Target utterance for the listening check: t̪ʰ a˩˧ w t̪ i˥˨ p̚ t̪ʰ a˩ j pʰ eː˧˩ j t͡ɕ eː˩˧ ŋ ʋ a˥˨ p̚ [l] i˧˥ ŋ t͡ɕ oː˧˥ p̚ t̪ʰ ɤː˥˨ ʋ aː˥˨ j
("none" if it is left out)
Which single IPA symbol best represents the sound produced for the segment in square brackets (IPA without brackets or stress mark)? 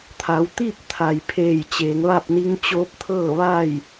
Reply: n